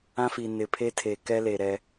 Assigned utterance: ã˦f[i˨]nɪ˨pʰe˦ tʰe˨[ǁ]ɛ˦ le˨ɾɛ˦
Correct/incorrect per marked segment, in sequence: correct, incorrect

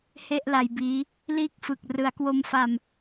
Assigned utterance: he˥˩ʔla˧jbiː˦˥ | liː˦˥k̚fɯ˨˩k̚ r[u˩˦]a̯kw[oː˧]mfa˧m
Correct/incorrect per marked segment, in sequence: incorrect, incorrect

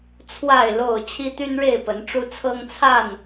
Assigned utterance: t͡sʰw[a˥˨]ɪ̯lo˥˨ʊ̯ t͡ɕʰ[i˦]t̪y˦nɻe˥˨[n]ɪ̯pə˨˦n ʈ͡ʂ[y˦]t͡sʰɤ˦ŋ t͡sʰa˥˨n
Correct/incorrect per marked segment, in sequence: correct, correct, incorrect, incorrect

